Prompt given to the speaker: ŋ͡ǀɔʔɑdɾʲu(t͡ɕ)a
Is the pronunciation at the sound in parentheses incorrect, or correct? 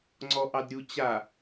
correct